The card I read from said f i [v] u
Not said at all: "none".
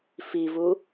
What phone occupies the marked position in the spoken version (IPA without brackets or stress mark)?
v